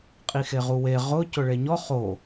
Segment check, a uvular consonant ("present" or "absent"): present